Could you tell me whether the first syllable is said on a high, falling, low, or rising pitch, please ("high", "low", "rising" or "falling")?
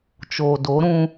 low